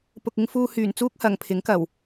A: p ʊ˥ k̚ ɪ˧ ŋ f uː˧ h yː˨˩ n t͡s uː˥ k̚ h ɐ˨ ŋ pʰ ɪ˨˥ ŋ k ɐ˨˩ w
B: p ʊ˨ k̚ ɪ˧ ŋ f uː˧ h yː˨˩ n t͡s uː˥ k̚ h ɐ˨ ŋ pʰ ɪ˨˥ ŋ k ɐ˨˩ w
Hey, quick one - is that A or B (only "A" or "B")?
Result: B